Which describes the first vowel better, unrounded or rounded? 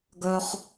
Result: rounded